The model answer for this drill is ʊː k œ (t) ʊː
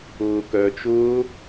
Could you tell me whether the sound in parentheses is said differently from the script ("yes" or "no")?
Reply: yes